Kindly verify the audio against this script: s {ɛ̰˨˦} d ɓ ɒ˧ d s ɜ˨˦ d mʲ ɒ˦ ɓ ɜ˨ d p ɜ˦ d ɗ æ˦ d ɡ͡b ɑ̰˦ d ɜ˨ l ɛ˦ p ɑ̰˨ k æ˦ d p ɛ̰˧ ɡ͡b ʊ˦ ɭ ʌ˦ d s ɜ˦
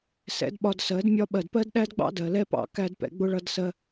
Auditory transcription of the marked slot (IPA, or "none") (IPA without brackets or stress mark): ɛ̰˨˦